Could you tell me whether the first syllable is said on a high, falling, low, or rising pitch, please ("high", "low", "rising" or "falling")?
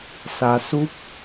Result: low